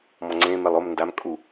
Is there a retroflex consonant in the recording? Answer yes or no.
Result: no